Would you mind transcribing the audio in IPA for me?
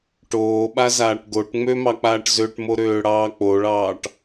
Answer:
ʈ oː ɓ a z aː ʈ ɡ o ʈ ŋ͡m ø m ɑ k͡p aː ʈ z ø ʈ m o ɾ øː ɽ ɑː k͡p o ɭ ɑː ʈ

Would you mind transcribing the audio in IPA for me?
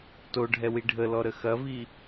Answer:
t o ɖʱ ɛ w i ɖʱ ə l ɔ ɾ ə x ɐ v i

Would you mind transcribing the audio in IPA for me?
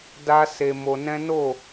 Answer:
d a˦ s e˧ m o˧ n ɛ̃˦ n o˦˨

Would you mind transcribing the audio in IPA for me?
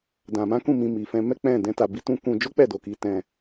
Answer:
d ã˨ m ã˨˦ k ũ˦˨ m ĩ˧ m i˨ f ɛ̃˧ m ɛ˦ k͡p ɛ̃˦˨ d ɛ̃˧ t a˨ b i˧ t ũ˦ k ũ˧ d͡ʒ o˦ k͡p ɛ˦˨ d o˨ k i˨˦ t ɛ̃˧

